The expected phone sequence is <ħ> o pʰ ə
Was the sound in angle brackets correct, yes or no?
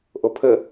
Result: no